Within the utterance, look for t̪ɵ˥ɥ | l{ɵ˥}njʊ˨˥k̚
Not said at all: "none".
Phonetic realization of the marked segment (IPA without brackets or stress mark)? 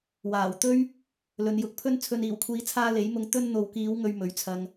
ɵ˨˧